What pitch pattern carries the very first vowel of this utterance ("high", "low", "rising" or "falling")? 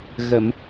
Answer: low